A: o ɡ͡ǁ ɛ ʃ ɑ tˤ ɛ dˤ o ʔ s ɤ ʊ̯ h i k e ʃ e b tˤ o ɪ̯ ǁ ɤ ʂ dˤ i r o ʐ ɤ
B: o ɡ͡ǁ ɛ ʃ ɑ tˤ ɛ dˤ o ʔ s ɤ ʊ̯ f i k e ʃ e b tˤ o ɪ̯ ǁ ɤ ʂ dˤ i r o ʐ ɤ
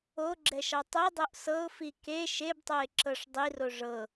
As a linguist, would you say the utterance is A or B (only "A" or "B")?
B